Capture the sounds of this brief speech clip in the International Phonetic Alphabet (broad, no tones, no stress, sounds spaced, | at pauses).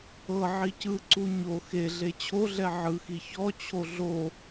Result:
ɤ ʕ i c ɯ ǀ u ɲ o x e ɮ e t͡ɕʰ o ɮ ɛ ʕ ɯ x i ç ɔ t͡ɕʰ o ɮ o